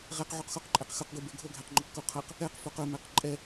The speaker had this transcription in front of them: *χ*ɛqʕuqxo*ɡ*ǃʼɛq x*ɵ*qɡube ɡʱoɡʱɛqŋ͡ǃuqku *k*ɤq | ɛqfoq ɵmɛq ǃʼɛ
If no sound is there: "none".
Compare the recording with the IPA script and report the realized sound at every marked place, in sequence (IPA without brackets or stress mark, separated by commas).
ʁ, q, ɵ, qʰ